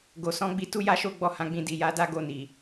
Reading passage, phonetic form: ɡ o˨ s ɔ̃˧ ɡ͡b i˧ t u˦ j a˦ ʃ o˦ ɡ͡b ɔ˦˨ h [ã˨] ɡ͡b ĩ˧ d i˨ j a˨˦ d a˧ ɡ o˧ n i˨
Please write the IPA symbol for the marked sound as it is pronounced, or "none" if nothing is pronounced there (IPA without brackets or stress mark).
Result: ã˧